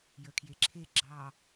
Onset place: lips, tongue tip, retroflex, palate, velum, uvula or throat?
palate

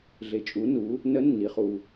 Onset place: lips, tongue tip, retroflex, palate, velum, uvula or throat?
tongue tip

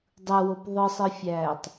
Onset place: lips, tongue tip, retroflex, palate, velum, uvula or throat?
tongue tip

